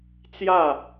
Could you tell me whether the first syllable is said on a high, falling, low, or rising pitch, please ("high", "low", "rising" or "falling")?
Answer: falling